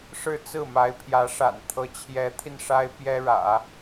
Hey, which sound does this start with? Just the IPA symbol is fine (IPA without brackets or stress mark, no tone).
ʂ